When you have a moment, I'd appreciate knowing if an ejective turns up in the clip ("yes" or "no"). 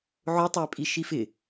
yes